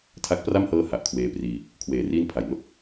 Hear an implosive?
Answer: no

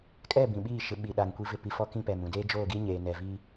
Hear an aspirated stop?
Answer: no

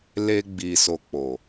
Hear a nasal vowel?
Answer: no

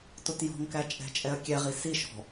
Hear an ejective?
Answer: yes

